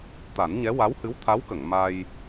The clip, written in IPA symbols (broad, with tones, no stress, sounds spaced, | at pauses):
t̪ a˨˩˦ n ɲ ɛ˧˥ w a˧˥ w h ɨ˧˥ w t̪ʰ a˧˥ w k ə˨˩˨ ŋ m a˧ j